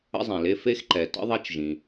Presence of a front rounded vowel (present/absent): absent